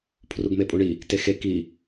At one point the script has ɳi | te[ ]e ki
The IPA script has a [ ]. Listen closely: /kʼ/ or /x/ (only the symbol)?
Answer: x